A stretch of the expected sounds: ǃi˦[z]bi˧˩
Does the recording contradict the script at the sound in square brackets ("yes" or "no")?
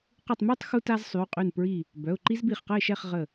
no